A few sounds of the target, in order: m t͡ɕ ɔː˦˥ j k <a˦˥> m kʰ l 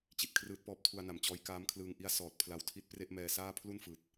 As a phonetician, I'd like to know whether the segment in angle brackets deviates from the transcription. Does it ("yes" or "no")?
yes